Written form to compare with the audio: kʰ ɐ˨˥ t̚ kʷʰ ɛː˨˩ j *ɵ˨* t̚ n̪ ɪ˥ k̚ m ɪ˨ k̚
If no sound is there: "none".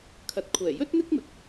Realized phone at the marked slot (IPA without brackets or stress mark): ɵ˥